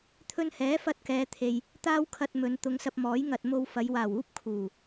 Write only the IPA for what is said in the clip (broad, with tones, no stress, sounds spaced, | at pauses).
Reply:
t̪ʰ ɵ˧ n h ɛː˨˥ f ɐ˧ t̚ k ɛː˨˧ t̪ʰ e˨ j | t̪ aː˥ w kʰ ɐ˧ t̚ m ɵ˨˧ n t̪ ʊ˨˧ ŋ s ɐ˧ p̚ m ɔː˨˥ j ŋ ɐ˨ t̚ m o˧ w f ɐ˨˧ j w aː˨˩ w uː˥ p̚ kʰ uː˨˩